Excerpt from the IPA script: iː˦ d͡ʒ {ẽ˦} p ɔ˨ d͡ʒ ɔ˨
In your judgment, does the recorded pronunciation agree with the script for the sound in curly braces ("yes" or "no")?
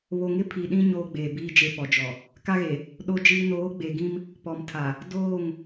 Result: no